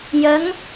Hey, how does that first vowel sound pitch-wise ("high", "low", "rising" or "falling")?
rising